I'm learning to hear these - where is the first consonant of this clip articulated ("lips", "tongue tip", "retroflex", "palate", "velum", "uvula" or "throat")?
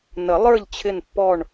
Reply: tongue tip